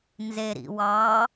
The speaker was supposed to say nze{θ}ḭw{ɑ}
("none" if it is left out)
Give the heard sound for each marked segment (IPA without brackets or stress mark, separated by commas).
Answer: ɾ, ɑ